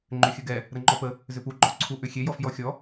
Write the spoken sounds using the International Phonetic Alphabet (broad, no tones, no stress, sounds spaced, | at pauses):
ŋ͡ǃ ʏ xʲ ə ɡ ɛ | ɾ ə ŋ͡ǃ ɔ p ə | z ʏ p u ɡ͡ǃ ɔ ǀʰ u ʔ ʏ xʲ e j ɔ f j ɔ xʲ ɔ